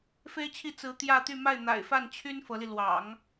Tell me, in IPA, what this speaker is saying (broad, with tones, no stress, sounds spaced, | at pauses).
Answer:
f e˥ ɪ̯ t͡ɕʰ i˥˩ t͡s ɹ̩˧˥ t̪ j ä˥˧ t̪ y˥˧ m a˥˩ ɪ̯ n̪ a̰˨˩ ɪ̯ f a˥˩ n t͡ɕʰ y˥ n f ɤ˧˥ l i˧ l w ɑ̰˨˩˦ ŋ